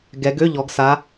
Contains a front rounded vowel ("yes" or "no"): yes